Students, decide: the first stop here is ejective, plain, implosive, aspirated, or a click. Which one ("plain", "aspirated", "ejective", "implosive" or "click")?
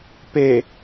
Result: plain